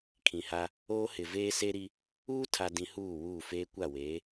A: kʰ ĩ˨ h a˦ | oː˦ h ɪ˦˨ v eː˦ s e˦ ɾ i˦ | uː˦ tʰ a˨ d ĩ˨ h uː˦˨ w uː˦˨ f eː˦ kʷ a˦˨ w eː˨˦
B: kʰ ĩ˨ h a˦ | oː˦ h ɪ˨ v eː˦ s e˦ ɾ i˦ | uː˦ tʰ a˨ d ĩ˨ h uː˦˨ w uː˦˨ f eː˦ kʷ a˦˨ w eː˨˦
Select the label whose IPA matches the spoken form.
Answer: B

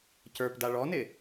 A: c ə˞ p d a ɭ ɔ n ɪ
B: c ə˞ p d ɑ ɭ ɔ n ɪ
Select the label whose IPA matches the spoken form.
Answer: A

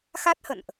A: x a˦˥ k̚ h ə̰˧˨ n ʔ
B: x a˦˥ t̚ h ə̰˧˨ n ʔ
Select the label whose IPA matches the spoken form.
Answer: B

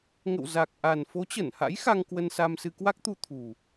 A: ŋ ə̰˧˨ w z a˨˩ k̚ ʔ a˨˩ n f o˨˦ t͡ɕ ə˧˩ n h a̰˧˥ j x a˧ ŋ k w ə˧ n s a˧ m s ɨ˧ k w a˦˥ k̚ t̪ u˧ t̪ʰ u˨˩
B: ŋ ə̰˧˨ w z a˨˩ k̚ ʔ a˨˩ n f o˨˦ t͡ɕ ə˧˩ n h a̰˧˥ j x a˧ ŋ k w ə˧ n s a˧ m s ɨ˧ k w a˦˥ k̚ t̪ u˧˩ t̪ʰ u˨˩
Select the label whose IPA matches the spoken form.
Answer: A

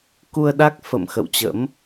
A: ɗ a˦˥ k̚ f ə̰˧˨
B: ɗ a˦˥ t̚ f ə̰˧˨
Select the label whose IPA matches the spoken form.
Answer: A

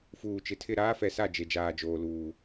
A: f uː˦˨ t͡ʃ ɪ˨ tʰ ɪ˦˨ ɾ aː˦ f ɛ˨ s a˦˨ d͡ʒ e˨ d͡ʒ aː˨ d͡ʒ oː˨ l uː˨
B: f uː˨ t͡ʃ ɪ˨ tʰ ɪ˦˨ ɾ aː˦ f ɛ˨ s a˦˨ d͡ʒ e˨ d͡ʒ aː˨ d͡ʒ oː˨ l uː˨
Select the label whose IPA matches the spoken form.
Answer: B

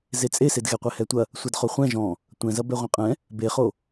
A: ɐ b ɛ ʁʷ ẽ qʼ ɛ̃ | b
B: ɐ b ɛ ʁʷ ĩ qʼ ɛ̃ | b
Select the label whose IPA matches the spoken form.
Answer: A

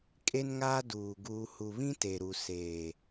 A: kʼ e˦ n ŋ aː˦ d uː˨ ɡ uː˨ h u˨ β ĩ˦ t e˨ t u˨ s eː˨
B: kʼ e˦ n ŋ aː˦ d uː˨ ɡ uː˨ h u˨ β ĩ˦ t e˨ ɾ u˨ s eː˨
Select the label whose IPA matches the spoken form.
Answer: B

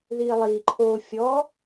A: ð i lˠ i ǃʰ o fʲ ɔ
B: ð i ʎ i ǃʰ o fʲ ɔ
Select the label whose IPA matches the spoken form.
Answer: A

